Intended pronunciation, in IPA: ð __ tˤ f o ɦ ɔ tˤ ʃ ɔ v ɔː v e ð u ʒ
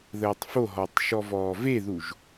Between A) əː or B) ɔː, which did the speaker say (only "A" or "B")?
A